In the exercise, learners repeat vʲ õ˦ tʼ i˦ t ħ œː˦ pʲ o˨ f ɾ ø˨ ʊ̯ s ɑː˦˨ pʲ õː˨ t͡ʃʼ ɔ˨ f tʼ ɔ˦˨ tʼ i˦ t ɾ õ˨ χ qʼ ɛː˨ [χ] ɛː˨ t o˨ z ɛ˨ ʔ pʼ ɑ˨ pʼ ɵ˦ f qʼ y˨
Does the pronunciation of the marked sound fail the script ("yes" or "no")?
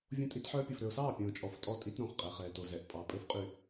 no